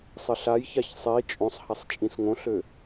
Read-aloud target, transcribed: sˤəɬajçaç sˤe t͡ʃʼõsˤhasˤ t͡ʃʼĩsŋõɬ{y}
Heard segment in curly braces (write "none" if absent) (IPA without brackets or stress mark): ø